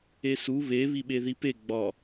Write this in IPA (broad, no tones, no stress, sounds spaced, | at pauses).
e s u β e β i ɓ e ð i p e ɡ͡b ɒ